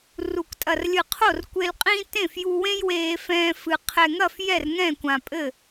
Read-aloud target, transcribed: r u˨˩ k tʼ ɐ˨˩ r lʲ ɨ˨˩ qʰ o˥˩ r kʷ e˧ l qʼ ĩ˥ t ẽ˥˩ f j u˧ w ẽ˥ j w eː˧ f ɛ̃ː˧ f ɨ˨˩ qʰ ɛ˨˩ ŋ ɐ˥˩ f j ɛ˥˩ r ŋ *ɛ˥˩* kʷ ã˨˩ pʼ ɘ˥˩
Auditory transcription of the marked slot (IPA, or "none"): ɛ̃˥˩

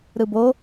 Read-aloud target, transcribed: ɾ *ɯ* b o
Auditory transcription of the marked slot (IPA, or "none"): ɯ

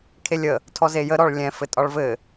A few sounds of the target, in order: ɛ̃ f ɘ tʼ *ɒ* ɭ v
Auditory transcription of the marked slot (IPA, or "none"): ɒ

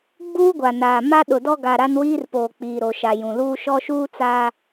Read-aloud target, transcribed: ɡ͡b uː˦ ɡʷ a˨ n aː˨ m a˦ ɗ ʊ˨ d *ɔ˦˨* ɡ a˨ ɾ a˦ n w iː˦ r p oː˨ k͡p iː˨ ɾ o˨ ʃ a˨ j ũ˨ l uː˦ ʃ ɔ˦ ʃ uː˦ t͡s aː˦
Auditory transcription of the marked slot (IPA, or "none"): ɔ˦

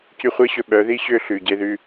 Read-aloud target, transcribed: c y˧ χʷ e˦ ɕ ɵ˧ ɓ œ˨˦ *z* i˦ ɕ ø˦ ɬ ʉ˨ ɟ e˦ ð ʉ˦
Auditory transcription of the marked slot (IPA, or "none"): ð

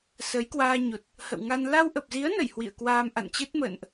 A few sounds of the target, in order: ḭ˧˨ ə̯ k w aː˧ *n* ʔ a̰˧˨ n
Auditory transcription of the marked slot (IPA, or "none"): m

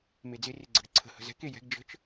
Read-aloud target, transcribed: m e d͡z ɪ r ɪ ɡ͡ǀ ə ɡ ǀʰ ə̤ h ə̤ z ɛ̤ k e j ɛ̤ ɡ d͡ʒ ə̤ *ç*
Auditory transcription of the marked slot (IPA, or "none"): t͡ʃ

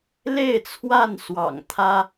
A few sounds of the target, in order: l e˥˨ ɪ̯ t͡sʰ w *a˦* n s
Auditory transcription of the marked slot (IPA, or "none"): a˥˨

